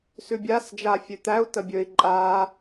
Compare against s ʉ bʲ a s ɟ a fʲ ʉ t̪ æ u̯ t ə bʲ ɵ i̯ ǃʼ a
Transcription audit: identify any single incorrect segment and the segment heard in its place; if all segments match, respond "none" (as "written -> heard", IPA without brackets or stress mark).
ɟ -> d͡ʒ